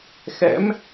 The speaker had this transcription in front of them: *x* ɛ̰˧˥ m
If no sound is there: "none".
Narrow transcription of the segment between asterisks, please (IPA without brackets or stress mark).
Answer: x